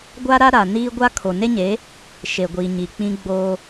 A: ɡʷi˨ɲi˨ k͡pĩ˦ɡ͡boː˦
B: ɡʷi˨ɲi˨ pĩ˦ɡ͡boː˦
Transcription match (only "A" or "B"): A